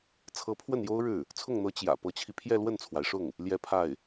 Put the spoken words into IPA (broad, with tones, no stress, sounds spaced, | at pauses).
t͡sʰ ɤ˧˥ pʰ w ə˥˩ n j o˥ ʊ̯ ɻ ɻ̩˥˩ | t͡sʰ ʊ˥˩ ŋ n̪ ɤ˧˥ t͡ɕ j ä̰˨˩ p ɤ˧˥ t͡ɕʰ i˧ pʰ j ɛ˥˧ l w ə˥˩ n t͡sʰ w a˩ ɪ̯ ʂ ʊ˥˩ ŋ | l j ɛ˥ pʰ a˥˩ ɪ̯